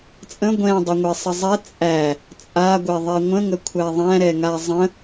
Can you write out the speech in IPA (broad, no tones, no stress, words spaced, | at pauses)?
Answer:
t͡sʼə̃ ɡʷɛ̃dˤəŋʷɛsˤə zˤɛ t͡sʼæ | t͡sʼaɡʷɛðˤɛ ŋʷə̃ŋəkʷʰæ ðˤæ̃ɾɛŋa zˤə̃